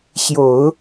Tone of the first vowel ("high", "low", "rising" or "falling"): low